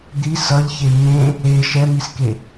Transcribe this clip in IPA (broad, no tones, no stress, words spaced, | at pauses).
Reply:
d̪i sʌʎçe ɲẽ | e ʃɛmiske